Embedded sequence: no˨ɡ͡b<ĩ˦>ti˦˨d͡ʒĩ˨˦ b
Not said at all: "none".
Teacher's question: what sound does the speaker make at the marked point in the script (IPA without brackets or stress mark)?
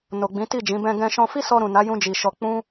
ĩ˨˦